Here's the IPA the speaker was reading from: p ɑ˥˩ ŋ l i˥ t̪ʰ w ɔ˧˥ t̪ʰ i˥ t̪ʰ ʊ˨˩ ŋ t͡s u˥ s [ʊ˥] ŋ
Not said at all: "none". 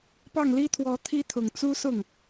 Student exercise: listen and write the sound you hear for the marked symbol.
ʊ˥˩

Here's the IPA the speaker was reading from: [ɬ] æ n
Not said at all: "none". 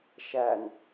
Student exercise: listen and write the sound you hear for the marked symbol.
ʃ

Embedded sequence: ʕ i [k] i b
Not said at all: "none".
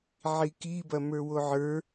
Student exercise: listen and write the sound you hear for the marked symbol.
k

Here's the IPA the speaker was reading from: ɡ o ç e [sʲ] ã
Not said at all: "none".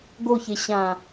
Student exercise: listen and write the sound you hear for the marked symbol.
ɕ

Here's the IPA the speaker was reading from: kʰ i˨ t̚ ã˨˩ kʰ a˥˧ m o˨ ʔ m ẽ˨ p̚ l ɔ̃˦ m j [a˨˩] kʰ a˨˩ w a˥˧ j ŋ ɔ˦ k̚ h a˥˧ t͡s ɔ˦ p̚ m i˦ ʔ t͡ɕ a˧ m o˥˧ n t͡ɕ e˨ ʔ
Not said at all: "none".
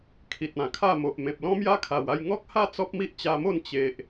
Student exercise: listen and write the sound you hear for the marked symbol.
a˦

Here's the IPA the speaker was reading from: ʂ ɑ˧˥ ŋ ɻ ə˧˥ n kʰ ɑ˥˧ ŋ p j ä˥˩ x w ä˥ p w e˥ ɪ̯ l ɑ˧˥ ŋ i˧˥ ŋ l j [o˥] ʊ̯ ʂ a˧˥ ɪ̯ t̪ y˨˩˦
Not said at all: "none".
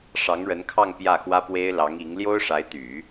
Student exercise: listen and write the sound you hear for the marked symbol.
o˥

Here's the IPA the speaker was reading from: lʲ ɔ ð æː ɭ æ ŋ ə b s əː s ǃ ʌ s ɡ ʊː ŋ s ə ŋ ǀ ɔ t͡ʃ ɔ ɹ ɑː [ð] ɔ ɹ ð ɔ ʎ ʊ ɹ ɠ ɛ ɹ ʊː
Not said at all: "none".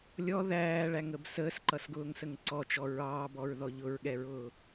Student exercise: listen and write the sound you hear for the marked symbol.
b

